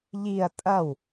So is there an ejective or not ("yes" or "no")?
yes